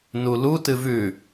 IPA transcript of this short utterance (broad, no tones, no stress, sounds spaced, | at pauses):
n u l u t ɨ v ʉ